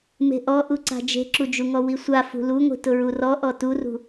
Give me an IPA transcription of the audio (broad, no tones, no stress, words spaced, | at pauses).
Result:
me̤ʔɔʔuǀa̤ d͡ʒe̤ǁud͡ʒuŋɔ wisʷa fṳluŋʷi̤ tʊɹurɔ ʔɔturṳ